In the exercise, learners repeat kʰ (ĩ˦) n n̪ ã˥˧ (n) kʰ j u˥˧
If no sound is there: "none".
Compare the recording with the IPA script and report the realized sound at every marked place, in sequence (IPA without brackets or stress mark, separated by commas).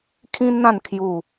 ĩ˦, n